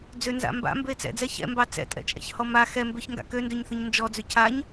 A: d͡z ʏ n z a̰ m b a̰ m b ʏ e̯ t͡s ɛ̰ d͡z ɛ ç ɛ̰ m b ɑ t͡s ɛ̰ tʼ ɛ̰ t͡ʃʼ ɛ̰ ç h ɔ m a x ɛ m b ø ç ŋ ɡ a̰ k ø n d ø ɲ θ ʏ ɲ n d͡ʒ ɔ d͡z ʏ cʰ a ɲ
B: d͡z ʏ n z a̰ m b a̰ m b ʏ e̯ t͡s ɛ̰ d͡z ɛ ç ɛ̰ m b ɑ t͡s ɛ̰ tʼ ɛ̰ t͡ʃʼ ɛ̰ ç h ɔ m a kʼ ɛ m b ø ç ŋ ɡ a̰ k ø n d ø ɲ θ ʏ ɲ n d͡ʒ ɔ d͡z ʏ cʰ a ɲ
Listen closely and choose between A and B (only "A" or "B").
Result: A